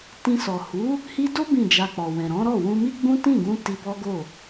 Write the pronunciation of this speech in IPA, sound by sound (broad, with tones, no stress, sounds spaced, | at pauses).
t ĩ˧ s ɔ˨ h u˨˦ | h i˧ d o˦ b ĩ˦˨ d͡ʒ a˧ k͡p ɔ˨ w ɛ̃˨ ɾ ɔ̃˨˦ ɾ ɔ˦˨ w ũ˧ m i˦ ɡ͡b ũ˦ t ĩ˦˨ ɡ ũ˧ t i˧ b ɔ˦ ɡ o˦˨